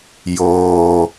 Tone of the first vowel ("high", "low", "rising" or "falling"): low